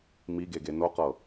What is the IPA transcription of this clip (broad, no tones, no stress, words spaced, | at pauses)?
miɡe ɡenoqɤ